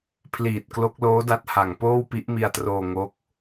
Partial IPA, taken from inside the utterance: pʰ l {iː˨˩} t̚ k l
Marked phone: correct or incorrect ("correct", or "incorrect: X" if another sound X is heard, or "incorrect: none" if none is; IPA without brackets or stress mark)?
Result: correct